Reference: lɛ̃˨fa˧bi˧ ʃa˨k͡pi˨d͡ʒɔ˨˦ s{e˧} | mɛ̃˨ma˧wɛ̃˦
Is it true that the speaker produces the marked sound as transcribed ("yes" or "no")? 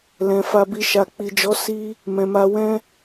no